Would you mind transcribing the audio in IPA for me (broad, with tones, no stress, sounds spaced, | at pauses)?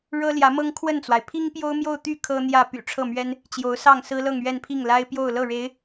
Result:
ɻ ɤ˥ l j ä˧˥ m ɤ˥ ŋ kʰ w ə˥˩ n t͡s w a˩ ɪ̯ pʰ i˥ ŋ p j o˥ ʊ̯ m j o˥˧ ʊ̯ t̪ y˥˩ kʰ ɤ˥ n̪ j ä˥˩ p y̰˨˩ ʈ͡ʂʰ ɤ˥˩ m ɥ ɛ˥ n | t͡ɕ j o˧˥ ʊ̯ s ɑ˥˩ ŋ s ɹ̩˥ l ɤ˥˧ ŋ ɥ ɛ˥˧ n pʰ i˥˩ ŋ l a˥ ɪ̯ p j o˥˧ ʊ̯ l ɤ˥˩ ɻ e˧˥ ɪ̯